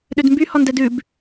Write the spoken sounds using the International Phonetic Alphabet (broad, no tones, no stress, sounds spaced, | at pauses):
ɗ ø d m b y h ɔ n d ɛ d ʉ b